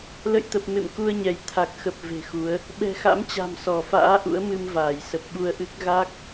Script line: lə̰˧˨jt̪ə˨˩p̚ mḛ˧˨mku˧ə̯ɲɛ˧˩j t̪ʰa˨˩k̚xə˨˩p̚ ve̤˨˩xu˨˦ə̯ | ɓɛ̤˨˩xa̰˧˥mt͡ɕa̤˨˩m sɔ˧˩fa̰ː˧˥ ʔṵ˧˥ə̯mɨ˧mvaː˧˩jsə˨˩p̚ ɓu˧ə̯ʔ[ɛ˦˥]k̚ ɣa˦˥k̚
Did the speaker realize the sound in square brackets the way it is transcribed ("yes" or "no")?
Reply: no